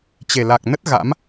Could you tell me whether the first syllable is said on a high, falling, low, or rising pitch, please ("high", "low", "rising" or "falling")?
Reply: low